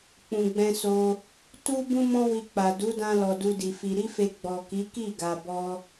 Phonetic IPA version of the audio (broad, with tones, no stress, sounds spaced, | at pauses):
k͡p ũ˨ ɡ͡b ɛ̃˧ s o˧ | t u˦ b ũ˦ m ɔ̃˦ w i˧ k͡p a˨ d u˨˦ d ã˧ l ɔ˨ d u˧ d i˨ f i˧ ɾ i˦ f e˧ ɡ͡b ɔ˨ k i˨˦ k i˦˨ ɡ a˧ b ɔ˦